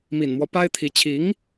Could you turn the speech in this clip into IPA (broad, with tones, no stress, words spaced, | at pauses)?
mi˨˩nmwɔ˦ pa˥ɪ̯t̪ʰi˧˥ t͡ɕʰi˧˥ŋ